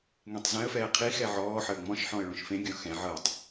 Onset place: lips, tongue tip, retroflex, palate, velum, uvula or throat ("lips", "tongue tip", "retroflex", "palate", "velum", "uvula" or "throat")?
velum